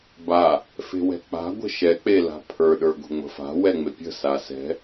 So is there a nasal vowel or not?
no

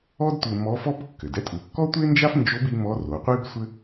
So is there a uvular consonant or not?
yes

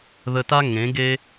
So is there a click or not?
no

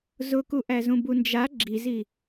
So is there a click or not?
yes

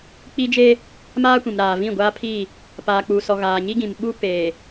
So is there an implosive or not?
yes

